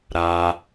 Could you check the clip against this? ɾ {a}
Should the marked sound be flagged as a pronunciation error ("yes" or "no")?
no